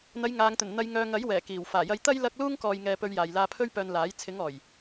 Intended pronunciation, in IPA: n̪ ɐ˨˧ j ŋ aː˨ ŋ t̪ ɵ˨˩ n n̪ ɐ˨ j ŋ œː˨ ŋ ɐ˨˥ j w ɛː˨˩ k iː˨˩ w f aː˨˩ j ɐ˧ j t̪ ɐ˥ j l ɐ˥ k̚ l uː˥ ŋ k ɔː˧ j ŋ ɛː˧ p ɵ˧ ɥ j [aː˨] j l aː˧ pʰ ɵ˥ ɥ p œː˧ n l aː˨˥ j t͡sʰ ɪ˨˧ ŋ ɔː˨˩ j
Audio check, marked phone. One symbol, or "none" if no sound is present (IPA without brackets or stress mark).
aː˨